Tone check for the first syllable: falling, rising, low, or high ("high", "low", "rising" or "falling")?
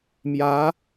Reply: rising